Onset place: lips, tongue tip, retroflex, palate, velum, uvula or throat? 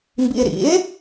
lips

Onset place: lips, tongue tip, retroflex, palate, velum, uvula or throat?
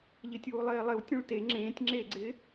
palate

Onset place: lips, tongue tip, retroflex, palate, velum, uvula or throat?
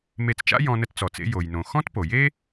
lips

